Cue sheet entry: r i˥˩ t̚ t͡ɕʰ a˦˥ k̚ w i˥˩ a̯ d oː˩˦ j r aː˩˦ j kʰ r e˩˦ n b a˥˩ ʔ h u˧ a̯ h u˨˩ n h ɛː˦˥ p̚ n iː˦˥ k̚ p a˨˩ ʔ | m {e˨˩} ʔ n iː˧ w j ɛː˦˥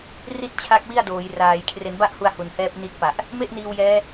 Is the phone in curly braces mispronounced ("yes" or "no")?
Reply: yes